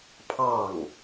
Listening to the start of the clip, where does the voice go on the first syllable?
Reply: falling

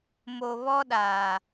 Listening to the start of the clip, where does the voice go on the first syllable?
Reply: low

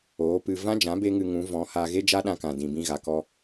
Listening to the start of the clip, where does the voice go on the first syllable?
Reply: rising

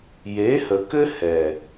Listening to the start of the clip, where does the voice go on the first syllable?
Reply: rising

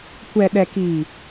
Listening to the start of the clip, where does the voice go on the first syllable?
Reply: low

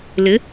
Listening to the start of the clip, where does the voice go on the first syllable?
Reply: rising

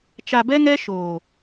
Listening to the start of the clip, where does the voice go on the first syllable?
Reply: low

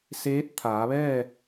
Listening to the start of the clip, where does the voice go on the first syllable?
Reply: rising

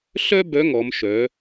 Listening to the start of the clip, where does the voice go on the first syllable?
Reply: high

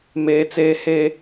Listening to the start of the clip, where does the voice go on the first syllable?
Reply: high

